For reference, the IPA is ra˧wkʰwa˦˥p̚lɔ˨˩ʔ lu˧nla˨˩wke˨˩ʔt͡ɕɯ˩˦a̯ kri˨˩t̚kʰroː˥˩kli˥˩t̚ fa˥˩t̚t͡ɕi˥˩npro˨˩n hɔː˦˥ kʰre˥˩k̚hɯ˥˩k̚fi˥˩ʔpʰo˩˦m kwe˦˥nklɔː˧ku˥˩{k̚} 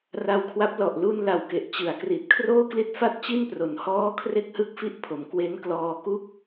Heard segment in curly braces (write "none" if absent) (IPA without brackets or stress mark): k̚